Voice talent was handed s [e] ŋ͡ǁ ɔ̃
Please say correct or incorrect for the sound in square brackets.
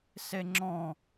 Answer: correct